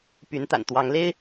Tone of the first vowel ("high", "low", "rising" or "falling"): rising